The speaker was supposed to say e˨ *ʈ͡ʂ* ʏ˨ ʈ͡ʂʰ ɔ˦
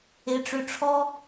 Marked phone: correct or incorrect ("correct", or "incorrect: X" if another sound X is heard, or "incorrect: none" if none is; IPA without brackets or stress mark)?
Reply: correct